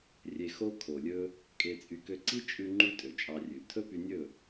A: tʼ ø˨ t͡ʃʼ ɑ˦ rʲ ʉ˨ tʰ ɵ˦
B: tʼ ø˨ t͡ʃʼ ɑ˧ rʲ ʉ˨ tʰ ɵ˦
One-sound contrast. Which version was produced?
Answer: B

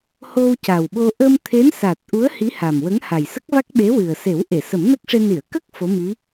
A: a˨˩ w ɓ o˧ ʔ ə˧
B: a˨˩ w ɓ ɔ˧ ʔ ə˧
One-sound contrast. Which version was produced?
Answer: A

